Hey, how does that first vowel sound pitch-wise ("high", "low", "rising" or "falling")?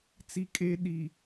high